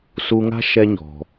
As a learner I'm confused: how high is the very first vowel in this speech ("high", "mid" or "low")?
high